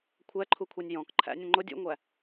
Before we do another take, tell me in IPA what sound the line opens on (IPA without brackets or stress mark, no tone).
kʷʰ